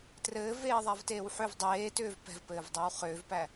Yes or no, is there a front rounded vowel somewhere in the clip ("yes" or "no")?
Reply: yes